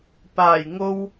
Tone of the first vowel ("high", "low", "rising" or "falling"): low